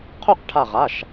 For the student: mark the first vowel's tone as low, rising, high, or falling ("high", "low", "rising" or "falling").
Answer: falling